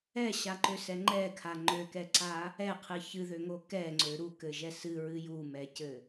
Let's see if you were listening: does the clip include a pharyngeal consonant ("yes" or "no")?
no